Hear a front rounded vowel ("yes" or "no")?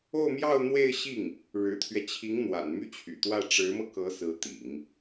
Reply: yes